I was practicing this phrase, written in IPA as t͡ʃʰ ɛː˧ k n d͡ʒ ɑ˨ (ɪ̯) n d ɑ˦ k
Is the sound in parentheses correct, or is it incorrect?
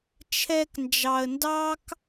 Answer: incorrect